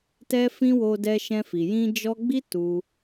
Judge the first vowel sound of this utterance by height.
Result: mid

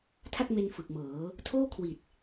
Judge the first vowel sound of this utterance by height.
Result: low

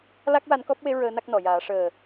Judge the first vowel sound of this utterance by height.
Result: low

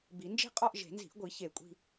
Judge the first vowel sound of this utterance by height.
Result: high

